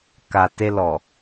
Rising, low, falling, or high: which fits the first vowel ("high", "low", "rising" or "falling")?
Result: low